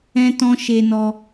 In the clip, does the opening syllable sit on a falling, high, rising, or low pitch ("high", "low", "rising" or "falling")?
high